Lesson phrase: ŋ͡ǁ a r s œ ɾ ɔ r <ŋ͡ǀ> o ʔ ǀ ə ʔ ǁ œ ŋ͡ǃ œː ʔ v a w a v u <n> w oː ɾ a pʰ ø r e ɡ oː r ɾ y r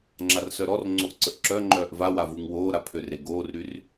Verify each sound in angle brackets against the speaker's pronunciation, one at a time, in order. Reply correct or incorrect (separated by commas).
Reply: correct, incorrect